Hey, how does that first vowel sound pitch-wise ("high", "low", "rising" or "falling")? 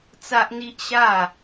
high